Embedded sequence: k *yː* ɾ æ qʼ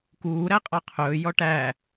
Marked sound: incorrect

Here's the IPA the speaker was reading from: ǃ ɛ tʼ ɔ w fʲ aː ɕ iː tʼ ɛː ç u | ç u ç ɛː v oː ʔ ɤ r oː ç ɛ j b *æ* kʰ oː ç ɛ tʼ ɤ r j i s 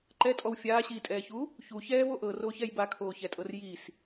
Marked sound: incorrect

